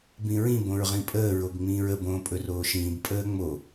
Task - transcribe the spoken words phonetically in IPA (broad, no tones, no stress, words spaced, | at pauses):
bĩɹĩ bõɹʁĩpʼəː ɹoɡŋ͡mĩːɹə bõːpʼɵroːʃĩːb pʼəːŋ͡mo